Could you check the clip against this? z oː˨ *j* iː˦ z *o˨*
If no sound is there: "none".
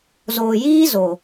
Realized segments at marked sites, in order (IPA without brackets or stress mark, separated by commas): j, o˨